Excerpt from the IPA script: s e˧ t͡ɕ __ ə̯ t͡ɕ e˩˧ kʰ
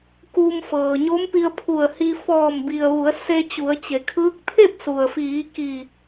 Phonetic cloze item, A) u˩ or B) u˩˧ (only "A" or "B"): B